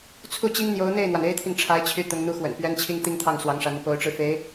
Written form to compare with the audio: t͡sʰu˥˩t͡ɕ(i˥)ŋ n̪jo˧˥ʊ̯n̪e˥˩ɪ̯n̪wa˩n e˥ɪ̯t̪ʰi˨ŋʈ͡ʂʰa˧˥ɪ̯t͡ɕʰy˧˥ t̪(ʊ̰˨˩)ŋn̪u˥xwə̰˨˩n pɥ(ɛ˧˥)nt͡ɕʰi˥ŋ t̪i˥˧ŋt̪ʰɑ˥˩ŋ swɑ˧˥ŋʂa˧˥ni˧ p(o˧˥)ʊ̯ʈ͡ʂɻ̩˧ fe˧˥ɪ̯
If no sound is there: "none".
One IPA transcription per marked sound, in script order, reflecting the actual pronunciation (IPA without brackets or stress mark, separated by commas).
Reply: i˥, ʊ˧˥, ɛ˥, o˧˥